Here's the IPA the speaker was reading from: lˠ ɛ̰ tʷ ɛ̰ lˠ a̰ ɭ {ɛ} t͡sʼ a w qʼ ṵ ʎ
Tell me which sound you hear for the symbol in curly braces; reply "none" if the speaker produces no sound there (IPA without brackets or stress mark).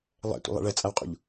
ɛ